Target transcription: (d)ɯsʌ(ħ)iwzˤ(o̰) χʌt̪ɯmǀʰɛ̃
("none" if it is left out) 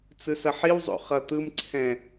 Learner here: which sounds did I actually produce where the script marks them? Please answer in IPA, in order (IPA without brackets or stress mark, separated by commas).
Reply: t͡s, ħ, o̰